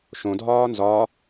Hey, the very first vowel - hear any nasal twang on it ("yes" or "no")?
yes